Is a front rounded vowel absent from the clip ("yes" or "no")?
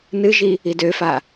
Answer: no